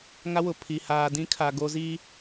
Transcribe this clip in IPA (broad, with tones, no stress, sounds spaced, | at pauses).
ŋ a˦ w ʊ˨ pʰ i˨ h aː˨ d ĩ˦ kʰ a˨ ɡ o˦ z i˦